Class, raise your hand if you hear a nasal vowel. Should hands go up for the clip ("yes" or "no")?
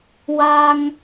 no